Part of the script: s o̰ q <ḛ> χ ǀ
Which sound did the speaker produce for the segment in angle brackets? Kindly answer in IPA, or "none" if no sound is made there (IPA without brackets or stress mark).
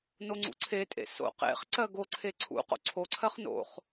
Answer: ḛ